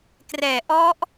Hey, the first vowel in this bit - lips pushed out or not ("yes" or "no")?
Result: no